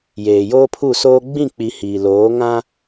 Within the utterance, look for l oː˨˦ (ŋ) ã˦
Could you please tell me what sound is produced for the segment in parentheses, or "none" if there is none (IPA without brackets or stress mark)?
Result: ŋ